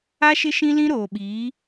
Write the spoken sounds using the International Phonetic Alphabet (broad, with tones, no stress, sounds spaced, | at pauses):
a˦ ʃ ɪ˦ ʃ ĩ˦ l ĩ˦ ɾ oː˨ ɓ iː˨˦